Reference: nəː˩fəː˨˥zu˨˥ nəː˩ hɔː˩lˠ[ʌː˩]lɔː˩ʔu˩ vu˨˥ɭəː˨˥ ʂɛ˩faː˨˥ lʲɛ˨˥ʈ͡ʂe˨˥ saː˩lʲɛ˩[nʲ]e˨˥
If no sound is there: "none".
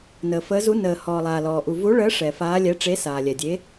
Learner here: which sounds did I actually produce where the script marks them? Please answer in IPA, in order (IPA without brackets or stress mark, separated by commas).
aː˩, dʲ